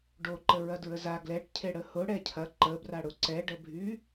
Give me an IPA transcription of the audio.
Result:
ɖoǃə ɹɐdɹəza ɡlɛʈcʰe ɽəhʊ ɽɛcʰɐ ǃəbra ɽʊǀɛɖəbʱy

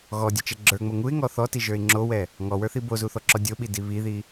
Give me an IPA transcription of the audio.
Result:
ɣɔdʲɔt͡ʃɛ ɡ͡ǁə˞ŋ͡mo ŋuɪ̯ŋɔ θɔtiʒə˞ɪ̯ ŋ͡ǁowɛ | ŋɔwə˞θi bozuθɔǁɔ dʲoɓidi βiði

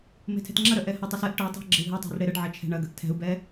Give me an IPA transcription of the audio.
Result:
me̤tʰɛ̤tŋ͡ǁɐɾœ ʔɛhətˤœs ɛʔ ʈœ tˤɛ̤ ɡ͡ǁə̤y̯ɦɛtˤɛ̤r ɽeɾəɖʕɐ t͡ʃʰɛ̤ɳɐɡəʔ tʰɛ̤u̯bɛ

